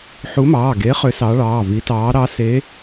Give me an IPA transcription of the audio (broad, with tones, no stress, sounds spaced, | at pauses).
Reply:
ħ u˨˦ m ɑː˩˧˩ ɡ e˨˦ χ ʏ˨˦ s ɑ˨˦ ɭ ɑː˩˧˩ v i˨˦ t ɑː˨˦ ɾ ɑ˨˦ s eː˨˦